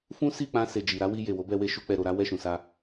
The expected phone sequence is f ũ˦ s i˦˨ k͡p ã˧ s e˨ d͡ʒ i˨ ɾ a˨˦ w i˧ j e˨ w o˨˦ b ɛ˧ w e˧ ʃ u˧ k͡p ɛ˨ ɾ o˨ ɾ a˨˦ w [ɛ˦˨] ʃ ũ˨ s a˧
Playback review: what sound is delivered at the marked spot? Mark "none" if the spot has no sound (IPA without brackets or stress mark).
ɛ˦˨